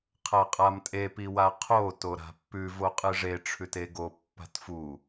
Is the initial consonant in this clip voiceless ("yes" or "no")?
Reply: yes